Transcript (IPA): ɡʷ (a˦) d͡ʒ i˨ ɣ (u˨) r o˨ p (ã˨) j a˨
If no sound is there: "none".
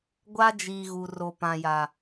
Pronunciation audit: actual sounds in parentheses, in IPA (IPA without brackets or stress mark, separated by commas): a˦, u˨, ã˨